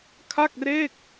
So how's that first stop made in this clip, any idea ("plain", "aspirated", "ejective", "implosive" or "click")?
aspirated